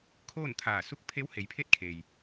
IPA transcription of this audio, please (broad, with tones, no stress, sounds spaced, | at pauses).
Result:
kʰ oː˥˨ n t̪ʰ aː˧˩ s u˥˨ k̚ pʰ e˧˥ w h e˩˧ j pʰ e˥˨ t̚ kʰ e˩ j